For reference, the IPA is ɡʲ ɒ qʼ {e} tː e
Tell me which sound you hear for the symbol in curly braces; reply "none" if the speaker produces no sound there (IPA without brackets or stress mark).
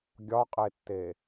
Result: e